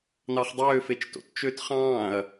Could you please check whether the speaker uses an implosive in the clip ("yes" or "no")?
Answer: no